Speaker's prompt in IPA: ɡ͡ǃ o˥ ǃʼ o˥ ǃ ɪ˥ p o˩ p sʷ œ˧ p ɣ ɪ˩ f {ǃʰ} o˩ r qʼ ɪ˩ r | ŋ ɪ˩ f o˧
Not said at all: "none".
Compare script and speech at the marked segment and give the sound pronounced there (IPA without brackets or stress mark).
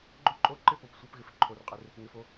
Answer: ǃʰ